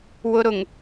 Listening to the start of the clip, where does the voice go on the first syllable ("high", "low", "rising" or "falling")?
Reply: high